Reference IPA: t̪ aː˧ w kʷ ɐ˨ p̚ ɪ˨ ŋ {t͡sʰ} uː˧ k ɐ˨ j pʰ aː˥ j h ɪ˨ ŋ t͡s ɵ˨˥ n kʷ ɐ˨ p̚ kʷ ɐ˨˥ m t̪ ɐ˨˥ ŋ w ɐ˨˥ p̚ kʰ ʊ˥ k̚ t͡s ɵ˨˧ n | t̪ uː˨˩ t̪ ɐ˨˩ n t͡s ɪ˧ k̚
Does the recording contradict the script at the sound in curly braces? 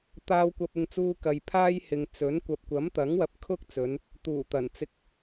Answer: yes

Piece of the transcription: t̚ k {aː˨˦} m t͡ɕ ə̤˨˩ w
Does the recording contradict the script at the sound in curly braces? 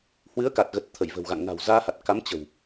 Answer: yes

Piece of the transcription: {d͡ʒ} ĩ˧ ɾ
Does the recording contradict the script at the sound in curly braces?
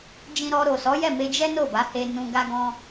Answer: no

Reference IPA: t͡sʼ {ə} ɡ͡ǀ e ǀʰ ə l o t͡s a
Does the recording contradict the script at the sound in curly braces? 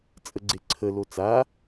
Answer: no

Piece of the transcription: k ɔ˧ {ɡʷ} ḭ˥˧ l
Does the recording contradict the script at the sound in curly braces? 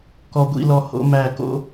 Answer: no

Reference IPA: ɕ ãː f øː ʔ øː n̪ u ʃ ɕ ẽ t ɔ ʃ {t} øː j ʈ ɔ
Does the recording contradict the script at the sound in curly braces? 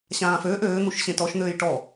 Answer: yes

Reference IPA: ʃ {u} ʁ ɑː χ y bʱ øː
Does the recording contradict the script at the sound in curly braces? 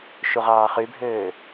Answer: no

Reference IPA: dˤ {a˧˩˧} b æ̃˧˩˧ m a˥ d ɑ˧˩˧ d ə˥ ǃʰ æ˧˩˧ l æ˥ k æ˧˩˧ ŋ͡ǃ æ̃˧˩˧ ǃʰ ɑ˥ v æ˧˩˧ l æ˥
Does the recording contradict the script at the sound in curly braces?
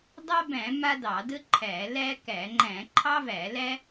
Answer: yes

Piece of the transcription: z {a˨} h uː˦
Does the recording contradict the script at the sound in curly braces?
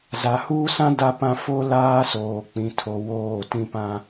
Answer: no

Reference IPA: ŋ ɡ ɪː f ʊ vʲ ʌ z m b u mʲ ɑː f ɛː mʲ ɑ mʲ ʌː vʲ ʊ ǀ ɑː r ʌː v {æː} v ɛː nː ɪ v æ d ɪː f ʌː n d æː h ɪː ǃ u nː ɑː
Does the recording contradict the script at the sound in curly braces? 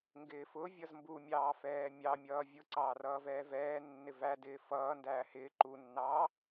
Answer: yes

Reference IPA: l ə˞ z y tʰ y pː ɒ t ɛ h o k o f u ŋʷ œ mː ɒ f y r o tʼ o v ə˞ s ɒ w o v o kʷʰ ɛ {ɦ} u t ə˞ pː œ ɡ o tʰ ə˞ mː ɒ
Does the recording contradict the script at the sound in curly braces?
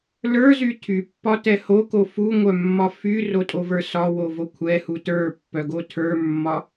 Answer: yes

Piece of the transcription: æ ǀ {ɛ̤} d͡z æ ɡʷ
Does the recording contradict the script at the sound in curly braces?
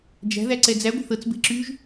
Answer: yes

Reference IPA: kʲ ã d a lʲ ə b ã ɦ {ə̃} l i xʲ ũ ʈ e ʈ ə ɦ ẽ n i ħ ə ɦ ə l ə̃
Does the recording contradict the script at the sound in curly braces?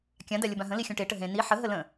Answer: no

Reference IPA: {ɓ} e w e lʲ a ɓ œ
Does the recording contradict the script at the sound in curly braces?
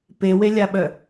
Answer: yes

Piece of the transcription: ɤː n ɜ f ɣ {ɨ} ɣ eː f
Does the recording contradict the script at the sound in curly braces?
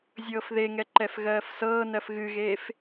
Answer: no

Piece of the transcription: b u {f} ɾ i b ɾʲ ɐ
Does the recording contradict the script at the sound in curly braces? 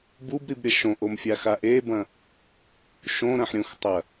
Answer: yes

